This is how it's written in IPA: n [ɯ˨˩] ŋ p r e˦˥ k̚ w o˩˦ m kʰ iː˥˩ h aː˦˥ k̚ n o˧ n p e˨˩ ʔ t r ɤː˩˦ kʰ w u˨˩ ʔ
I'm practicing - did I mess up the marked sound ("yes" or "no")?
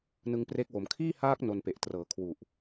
yes